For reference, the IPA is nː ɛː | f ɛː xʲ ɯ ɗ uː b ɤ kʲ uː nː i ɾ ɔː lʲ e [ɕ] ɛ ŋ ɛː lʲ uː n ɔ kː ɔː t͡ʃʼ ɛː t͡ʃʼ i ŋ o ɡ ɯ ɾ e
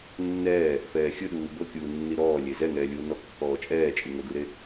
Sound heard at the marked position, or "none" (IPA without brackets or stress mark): z